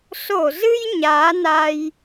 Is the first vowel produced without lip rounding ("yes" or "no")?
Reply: no